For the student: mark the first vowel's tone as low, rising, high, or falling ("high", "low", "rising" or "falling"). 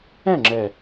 falling